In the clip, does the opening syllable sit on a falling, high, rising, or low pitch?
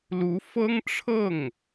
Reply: rising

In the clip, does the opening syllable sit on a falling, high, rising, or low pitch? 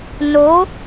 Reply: rising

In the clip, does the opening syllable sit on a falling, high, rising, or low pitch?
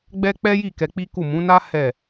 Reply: high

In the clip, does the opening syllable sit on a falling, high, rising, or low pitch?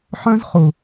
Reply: high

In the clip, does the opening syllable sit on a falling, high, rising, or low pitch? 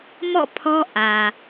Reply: falling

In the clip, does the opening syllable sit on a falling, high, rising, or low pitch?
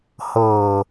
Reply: low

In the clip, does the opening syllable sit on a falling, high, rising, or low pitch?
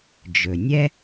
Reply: low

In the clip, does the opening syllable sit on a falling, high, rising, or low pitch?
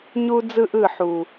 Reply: high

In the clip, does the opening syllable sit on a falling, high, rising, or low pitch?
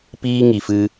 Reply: high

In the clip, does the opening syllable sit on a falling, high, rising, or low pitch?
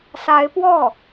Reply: rising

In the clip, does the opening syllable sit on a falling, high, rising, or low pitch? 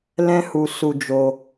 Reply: high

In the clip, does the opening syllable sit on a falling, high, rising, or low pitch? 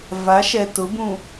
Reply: rising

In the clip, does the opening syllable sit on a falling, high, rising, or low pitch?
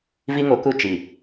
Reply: high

